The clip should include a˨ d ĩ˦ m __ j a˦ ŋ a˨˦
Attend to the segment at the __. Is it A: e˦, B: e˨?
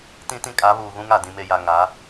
A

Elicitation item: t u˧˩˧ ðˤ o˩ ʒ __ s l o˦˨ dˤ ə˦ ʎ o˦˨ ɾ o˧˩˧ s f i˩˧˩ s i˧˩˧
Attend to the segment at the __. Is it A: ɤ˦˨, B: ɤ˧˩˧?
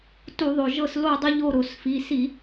A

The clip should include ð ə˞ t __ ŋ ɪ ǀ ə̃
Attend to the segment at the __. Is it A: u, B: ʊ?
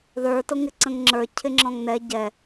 B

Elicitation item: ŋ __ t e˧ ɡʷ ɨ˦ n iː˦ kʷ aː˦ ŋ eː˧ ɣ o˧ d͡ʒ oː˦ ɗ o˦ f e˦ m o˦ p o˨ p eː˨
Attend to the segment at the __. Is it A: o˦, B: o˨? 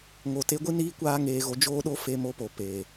B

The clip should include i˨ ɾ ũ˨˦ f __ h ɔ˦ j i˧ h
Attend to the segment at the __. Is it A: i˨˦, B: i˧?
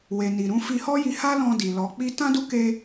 B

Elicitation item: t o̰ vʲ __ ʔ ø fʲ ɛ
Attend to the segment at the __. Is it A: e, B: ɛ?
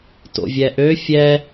B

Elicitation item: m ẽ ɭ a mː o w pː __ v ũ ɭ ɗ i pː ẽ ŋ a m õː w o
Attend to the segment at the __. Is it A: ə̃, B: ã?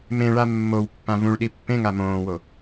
B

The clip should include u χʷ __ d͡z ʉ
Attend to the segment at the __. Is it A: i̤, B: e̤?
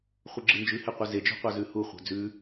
B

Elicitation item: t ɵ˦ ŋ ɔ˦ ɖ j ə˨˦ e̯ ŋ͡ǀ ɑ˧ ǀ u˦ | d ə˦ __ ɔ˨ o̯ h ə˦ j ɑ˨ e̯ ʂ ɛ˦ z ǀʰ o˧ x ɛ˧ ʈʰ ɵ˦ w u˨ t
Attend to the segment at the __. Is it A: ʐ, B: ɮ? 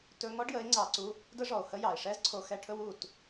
A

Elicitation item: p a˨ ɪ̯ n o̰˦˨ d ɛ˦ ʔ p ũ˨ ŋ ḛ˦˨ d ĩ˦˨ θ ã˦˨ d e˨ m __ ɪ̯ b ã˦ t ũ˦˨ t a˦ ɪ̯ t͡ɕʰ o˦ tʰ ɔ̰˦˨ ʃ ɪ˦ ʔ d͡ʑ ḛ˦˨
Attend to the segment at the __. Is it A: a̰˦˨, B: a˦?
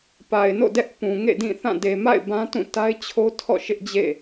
A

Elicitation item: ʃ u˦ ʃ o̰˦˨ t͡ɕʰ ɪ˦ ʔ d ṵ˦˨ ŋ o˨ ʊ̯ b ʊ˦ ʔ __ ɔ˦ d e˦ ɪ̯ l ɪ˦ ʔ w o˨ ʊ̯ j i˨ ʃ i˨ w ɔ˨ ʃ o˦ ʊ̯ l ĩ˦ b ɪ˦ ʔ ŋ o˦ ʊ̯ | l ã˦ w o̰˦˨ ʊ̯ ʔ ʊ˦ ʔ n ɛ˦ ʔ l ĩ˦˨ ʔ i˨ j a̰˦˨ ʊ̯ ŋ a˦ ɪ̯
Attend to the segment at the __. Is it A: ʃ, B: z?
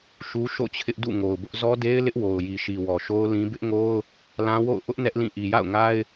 B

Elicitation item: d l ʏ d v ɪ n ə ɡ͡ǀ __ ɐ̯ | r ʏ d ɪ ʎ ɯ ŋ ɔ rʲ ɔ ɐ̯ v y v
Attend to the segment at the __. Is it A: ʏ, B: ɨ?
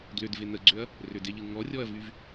A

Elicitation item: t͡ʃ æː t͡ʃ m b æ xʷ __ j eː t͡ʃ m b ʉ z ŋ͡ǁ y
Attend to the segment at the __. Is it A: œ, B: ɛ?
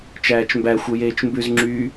A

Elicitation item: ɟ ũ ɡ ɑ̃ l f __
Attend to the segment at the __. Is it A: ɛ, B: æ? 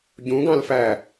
B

